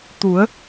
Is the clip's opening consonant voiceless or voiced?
voiceless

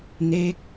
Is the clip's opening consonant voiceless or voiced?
voiced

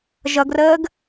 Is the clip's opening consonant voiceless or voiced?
voiced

